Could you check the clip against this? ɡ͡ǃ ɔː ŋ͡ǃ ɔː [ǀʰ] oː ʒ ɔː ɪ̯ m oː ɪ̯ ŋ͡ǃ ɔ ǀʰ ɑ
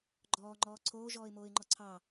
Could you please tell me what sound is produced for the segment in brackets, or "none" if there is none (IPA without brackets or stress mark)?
ǀʰ